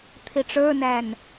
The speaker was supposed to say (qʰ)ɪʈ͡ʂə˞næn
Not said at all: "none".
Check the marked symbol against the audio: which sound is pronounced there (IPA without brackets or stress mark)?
t̪ʰ